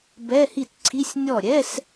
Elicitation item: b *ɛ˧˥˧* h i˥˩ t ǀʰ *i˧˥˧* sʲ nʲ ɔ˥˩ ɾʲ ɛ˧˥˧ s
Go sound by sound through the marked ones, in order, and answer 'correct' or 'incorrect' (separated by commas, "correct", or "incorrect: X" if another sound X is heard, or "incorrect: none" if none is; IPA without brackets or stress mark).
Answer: correct, correct